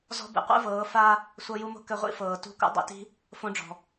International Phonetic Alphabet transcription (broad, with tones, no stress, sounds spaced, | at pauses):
z ɔ̤˦ b ḭ˨ qʷ ḛ˦ v ɤː˨˦ f a˦ | sʷ ɤ˧ j u˧ m o̤˦ k ɘ˧ ʁʷ ḭ˦ f ɤː˨ t ṳ˧ k ṵ˧ dˤ ḛ˧ t i̤˦ | f õ˧ ɖ͡ʐ ɔ̤˨